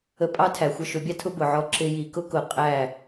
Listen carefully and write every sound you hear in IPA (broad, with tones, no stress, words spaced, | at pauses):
ə˧ pʼɑ˦tʰæ˨ xʷʌ˧ʃʊ˨˦bʲɑ˦tʰʊ˦ bʊ˨ʕɔ˧ ǁɪ˧ji˨kʊ˦kʊ˨ qʼæ˦˨